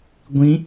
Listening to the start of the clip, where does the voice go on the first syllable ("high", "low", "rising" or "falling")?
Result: rising